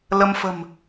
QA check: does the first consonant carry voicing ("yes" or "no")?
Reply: yes